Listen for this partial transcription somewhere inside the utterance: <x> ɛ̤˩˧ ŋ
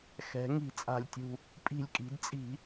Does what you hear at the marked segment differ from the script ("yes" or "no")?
no